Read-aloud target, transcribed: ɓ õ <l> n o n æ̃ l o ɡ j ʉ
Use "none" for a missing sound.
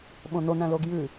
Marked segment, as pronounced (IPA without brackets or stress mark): none